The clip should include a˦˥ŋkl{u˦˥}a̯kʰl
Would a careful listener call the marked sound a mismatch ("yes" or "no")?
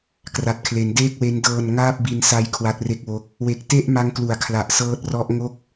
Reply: yes